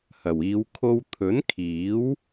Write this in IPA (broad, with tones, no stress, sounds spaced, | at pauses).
h ɐ˨˩ w iː˨˧ w kʰ o˧ w t̪ʰ ɵ˨˥ n kʰ iː˨˥ w